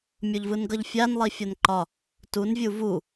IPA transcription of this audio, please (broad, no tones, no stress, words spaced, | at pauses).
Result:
mʲoʎvɯnɡʌʎfʲan lˠifʲɒnǃɒ | tun vʲuvu